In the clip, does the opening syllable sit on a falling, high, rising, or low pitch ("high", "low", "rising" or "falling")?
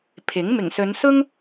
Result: rising